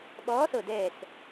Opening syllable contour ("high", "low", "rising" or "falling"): rising